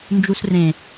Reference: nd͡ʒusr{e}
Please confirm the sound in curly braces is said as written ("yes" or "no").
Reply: no